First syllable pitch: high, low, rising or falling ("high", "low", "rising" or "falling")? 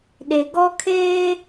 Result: low